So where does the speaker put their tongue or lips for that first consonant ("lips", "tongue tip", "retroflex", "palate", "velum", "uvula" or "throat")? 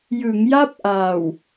palate